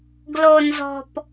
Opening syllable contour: low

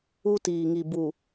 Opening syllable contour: high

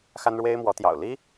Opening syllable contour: high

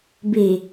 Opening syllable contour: low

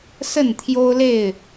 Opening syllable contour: falling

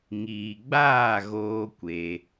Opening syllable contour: low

